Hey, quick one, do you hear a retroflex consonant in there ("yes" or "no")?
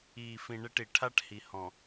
yes